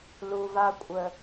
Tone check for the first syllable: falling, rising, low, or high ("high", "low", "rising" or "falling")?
low